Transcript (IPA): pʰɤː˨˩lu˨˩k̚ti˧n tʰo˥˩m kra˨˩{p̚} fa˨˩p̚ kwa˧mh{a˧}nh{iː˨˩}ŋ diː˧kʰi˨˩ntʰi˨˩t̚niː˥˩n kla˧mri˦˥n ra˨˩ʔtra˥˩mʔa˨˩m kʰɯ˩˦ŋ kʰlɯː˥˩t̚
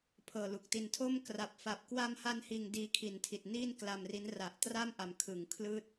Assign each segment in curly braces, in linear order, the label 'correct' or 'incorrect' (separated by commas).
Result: correct, correct, correct